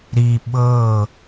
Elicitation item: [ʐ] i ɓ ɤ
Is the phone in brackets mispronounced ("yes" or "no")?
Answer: yes